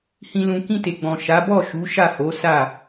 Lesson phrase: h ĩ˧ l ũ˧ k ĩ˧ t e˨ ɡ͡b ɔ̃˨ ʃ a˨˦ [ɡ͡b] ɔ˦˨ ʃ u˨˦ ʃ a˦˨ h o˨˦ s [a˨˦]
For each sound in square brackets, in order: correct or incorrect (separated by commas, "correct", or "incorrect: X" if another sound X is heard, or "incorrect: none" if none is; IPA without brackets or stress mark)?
incorrect: b, incorrect: a˦˨